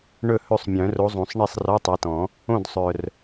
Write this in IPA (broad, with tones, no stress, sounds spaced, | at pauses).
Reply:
ɳ ɵ˥˨ h ɵ˥˨ sˤ mʲ œ̃˨˩˦ r o˨˦ zˤ õ˨˩˦ sˤ ɳ e˥˨ sˤ r ɔ˧˥˧ tˤ e˨˦ t ɔ̃˨˩˦ | õ˥˨ d sˤ œ˨˩ r